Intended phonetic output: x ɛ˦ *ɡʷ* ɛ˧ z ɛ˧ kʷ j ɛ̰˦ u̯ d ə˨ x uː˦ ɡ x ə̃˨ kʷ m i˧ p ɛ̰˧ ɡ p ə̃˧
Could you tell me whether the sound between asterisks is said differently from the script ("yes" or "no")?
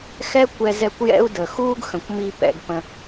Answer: yes